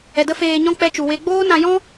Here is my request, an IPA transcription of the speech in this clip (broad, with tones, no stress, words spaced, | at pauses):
ɛ˨də˦feː˧ɲɔ̃˦ k͡pɛ˧t͡ʃu˨we˧ ɡ͡boː˦nã˧jɔ̃˦